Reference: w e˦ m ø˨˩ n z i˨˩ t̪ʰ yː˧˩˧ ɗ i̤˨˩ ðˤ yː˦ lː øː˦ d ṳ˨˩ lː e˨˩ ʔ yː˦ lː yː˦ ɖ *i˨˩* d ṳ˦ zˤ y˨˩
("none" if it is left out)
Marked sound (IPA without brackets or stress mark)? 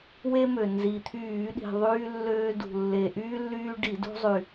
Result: i˧˩˧